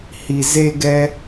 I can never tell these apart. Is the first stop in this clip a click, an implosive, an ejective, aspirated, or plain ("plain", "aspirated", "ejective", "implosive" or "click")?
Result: plain